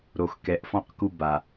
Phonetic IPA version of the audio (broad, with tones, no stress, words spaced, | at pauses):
ɾo˨x kɛ˨ʔfɔ̃˧qku˧ ba˨